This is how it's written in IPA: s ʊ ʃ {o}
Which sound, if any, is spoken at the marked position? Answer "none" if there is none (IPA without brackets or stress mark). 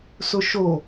o